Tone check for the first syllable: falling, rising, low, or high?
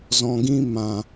low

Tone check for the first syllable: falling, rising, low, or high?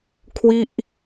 falling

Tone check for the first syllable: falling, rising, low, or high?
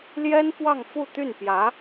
high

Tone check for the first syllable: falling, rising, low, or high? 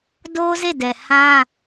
high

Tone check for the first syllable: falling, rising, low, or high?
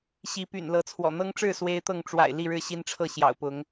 rising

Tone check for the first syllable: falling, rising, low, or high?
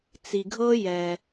low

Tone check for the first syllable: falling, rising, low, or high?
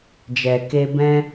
low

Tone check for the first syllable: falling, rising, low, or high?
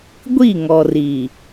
falling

